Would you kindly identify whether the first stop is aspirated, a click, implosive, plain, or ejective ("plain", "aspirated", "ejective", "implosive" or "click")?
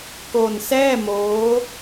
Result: plain